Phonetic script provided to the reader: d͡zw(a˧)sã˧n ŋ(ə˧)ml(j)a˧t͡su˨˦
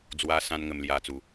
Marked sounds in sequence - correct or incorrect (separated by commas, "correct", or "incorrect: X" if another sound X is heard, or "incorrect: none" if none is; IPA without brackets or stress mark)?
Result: correct, correct, correct